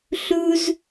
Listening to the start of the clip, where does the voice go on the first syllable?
high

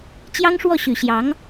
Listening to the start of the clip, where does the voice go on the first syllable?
high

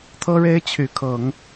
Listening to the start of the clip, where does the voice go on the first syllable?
high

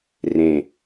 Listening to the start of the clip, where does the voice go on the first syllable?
low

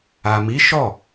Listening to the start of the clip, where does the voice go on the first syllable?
low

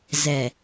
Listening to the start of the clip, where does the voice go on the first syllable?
low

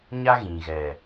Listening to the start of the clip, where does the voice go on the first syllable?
high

